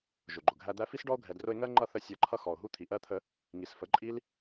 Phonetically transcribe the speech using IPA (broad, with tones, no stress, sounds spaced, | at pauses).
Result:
ʒ ʊ˨ ɡ͡ǃ ʊ˨ ɡʱ æ˧ d̪ æ˦ f i˦ s ɖ ɔ˦ o̯ ɡʱ ɛ˨ d r ʊ˧ e̯ ŋ ɜ˦ ŋ͡ǃ ʌ˦˨ θ ə˦ sʲ ɜ˧ ǃʰ ʌ˦ x ɔ˨ o̯ ɦ u˦ t̪ʰ i˨ ʔ ɜ˦ t̪ʰ ə˧ | ŋ i˨ s f ə˨˦ ǃʼ i˦ l